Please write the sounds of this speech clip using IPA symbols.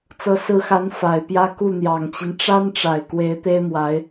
t͡s ɤ˧˥ s ɹ̩˧˥ x a˧˥ n f a˨˩ ɪ̯ p j ä˥˧ k u˥˩ n̪ j ɑ˨˩ ŋ t͡ɕ i˦ n ʈ͡ʂ a˥ n ʈ͡ʂ a˨˩ ɪ̯ k w e˧˥ ɪ̯ t̪ e˥ ɪ̯ m w a˧˥ ɪ̯

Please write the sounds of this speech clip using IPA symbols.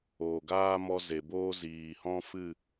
oː˨ ɡ aː˦ m ɔ˧ z e˨ b oː˦ z iː˨ h ɔ̃˦ f ɨ˦˨

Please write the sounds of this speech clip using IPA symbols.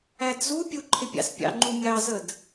æ d z u pʲ u ǃʰ ɪ pʲ ɑ̰ s pʲ ɑ̰ ŋ͡ǃ u mʲ ɑ z ə d

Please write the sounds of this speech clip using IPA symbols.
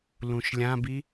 l ũ ʃ lʲ ã b i

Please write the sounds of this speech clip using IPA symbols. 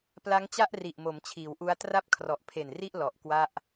p l a˦˥ ŋ t͡ɕ a˥˩ ʔ r i˨˩ ʔ m o˩˦ m t͡ɕʰ iː˩˦ w ʔ u˦˥ a̯ t r a˥˩ p̚ kʰ r ɔ˨˩ ʔ pʰ e˨˩ n r i˥˩ ʔ l ɔ˨˩ ʔ k w a˥˩ ʔ

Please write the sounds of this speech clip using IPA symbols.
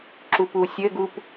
ǁ u p u sʲ ɘ ɡ u p

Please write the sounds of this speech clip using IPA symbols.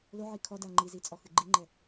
l o ʕ i kʰ ɔ d a ŋ͡ǃ i z i t͡sʼ ɔ x ɨ ɡ͡ǃ i ŋ͡ǃ ɛ

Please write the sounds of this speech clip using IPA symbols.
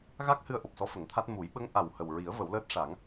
ɣ a˦˥ k̚ h ɨ˧ ə̯ ʔ o˨˩ p̚ s ɔ˧˥ f ə˨˩˦ ŋ t̪ʰ a˦˥ t̚ m u˨˩˦ j ɓ ə˧˥ ŋ ʔ a˨˩ w h ə˨˩ w ɹ i˨˩˦ ə̯ v ə˨˩˦ w l əː˦˥ t̚ ʂ a˨˩˦ ŋ

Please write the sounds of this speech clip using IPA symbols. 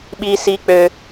ɓ i˦ s i˦ k͡p ø˦

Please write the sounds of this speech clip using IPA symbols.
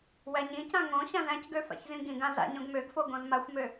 w æ ɲ ĩ c ã ŋ õ ɕ ã z æ̃ c ɡ ø f a̰ ç z ĩ ɡ ĩ ɡ ã z a̰ ɲ õ ɡ m ø ɡ f o ɡ õ z m a xʷ m ø

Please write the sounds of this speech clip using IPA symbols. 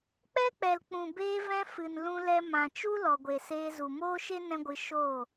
k͡p ɛ˦ k͡p ɛ˨ l k͡p ũ˨ b eː˧ v ɛ̃˧ f ɨ˨ n l ũ˧ l ɛ˧ m ã˨ t͡ʃ u˦ l ɔ˨ ɡʷ e˨ s eː˧ z u˨ m oː˦ ʃ e˦ n ɛ̃˦ ɡʷ ɨ˧ ʃ oː˦˨

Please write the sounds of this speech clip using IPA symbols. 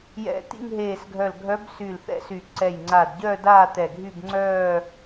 j ɛ̰˧˩ t̪ ḭ˥˧ ŋ ɦ eː˧˩ s ɡʱ œ˧˩ l ɡʱ œ˧˥ b s yː˧˩ l θ ɛ̰˧˥ s y˧˩ ǀ ɛ˧˩ j ŋ͡ǀ aː˧˩ d ɟ œː˥˧ d aː˥˧ t̪ ɛ˧˩ ɡʱ y˥˧ b ŋ͡ǀ œː˥˧

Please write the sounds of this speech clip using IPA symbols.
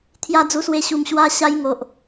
t̪ʰ j a˦ d͡z u˧ s w e˧ ɕ u˨˩ m ɕ w a˧ ɕ a˦ j ŋ o˨ ʔ

